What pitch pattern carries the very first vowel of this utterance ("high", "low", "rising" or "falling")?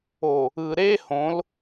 low